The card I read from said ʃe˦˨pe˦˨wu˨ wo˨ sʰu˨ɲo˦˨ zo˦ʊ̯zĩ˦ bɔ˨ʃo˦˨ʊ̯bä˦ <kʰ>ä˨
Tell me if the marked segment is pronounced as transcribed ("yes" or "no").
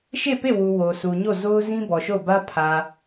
no